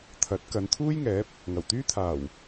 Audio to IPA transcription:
t̪ʰ ɐ˨˥ t̚ k ɐ˨˧ n t̪ʰ uː˥ j ŋ ɛː˨˥ p̚ | ŋ ɐ˨˩ w t̪ yː˥ t̪ʰ aː˨˩ w

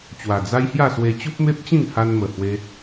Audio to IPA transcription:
t͡ɕ w a˨˩ d͡z a˦ j h j a˥˧ s w e˧ t͡ɕ u˦ p̚ m e˦ p̚ t͡ɕ ĩ˥˧ ŋ h a˧ n m ə˨˩ h w e˧

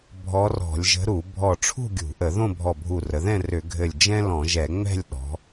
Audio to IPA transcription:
bʱ ɔ˧˥ r ɔ̤˧˩˧ lʲ ʒ ə̤˧˥ ɾ u˧˩˧ bʱ ɔ˧˩ ʈ͡ʂʰ ṳ˥˧ ɡʲ ṳ˧˩˧ ʔ ə˧˩˧ ð õ˥˧ bʱ ɔ˧˩ bʱ u˧˩ r ə˩˧ ð ɛ̃˥˧ r ʏ˧˩˧ ɡʱ ɘ˧˩ lʲ d͡ʒ ɛ̃˥ l ɔ̃˧˩˧ ʒ ɛ˧˩˧ ŋ͡m ɛ̤˥˧ lʲ ɗ ɔ̤˩˧

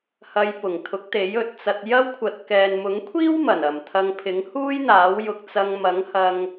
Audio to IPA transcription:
h ɐ˨˧ j p ʊ˨˩ ŋ t̪ʰ ʊ˨˥ k̚ t̪ e˨˥ j ɵ˨ t̚ t͡s ɐ˧ t̚ j ɐ˥ w kʷʰ ɐ˧ t̚ k ɛː˨ n m ʊ˨˥ ŋ kʷʰ iː˥ w m ɐ˨˩ n ɐ˨˩ m t̪ʰ ɐ˧ ŋ pʰ ɪ˨˥ ŋ h uː˥ j n̪ aː˨˥ w j ʊ˧ k̚ t͡s ɐ˧ ŋ m ɐ˨˥ ŋ h ɐ˥ ŋ

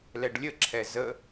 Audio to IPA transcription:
l ɛ ɖ lʲ ə ǁʰ ɛ z ə

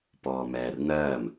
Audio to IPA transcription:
p ɔː m ɛː r n ɜː m

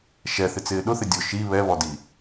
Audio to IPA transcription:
ʃ ɛ θ ɪ t͡s ɪː ɗ ʊ θ ɪ dʲ ʊ ʃ i β ɛ β ɔ d i

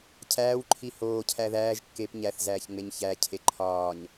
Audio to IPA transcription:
cʰ æː w ǃʰ i h oː cʰ æ ð æː ʒ kː e p ɲ æ θ z æː ç ŋ͡m e ɲ ç æ cʰ e ǃʰ ɒː ɲ

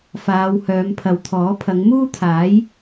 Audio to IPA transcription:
f aː˨˧ w h œː˨˧ m pʰ ɐ˨ w t̪ʰ ɔː˨˥ pʰ ɐ˨˧ ŋ m uː˥ t̪ʰ aː˨˥ j

